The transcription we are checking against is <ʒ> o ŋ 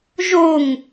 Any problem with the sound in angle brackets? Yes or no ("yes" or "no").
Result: no